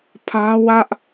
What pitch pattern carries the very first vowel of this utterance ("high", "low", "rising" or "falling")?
high